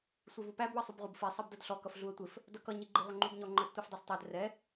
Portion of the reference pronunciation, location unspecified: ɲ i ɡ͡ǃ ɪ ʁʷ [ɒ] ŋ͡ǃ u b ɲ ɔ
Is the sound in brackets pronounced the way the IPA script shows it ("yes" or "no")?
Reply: no